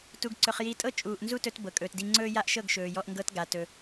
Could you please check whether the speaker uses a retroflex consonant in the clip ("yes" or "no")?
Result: no